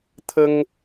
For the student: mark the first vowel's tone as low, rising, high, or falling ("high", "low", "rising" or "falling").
high